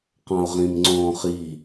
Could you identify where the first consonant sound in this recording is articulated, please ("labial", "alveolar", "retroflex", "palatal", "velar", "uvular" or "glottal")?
uvular